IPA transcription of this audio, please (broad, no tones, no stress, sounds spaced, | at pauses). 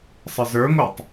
sˤ ə z ə˞ ŋʷ e tˤ